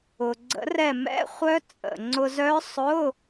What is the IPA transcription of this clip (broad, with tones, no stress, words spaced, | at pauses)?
ʊ˩ɡ͡ǀə̰˨˩˦rɛ˧˩mɛ̰˧˥˧ χʷœ˦˥t͡sʼə̰˩ ŋ͡ǀʊ˧zœ˦˥ sˤʊ˧˥˧